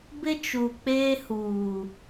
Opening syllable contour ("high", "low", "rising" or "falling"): high